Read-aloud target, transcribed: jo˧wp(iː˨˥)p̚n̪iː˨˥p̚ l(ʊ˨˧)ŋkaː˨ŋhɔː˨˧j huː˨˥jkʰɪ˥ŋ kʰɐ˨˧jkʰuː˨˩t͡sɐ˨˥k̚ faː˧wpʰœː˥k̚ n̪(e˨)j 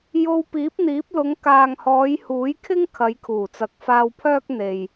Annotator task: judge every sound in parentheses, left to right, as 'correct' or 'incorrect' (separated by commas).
correct, correct, correct